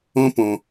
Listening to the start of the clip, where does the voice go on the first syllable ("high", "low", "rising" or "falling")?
high